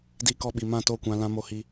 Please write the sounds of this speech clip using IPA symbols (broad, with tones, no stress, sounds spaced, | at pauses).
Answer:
d i˦ k ɔ˦ ɓ i˧ m ã˦˨ t o˦˨ kʷ ã˧ l ã˧ m o˧ h i˧